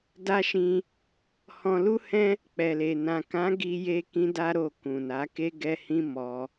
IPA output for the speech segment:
da˦ʃĩ˧ | hɔ̃˧lu˦hɛ̃˦ | k͡pɛ˨le˨ nã˨kã˨˦ ɡi˦je˦ kĩ˦da˦ɾo˦˨ kũ˨na˨˦ ke˦ɡɛ˦hĩ˦ mɔ˧

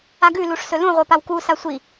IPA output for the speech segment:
aɡʉ luʂsɵlũ ʁʷepawku sasʷi

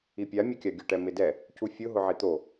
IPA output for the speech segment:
ipʲa mʲʊkʲaɡʲʊ ʈɛmɪdɛ | cufʲʊ ɦʊʕit̪o

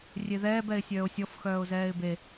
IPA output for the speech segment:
rʲeðɛːb ɛɪ̯sʲœːʊ̯sʲɔf xœːʊ̯zɛːɪ̯be

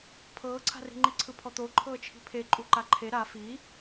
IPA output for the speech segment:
pʰɤːǀʰa̤ri̤ŋ͡ǃi ǀʰɯpʰɔt̪o ǃʰɤːt͡ʃʰi̤pʰe ǃʼuǃaǃʰe ɾa fi

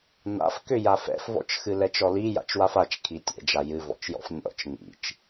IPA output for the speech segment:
na̰fkʏ jafɛ̰fvɔ̰t͡ʃ xɨlɛt͡ʃɔli ja̰t͡ʃwafat͡ʃ kʰitʲɛ̰d͡ʒa jɨvɔ̰t͡ʃjɔ̰f nʲɔ̰t͡ʃ ŋḭt͡ʃ

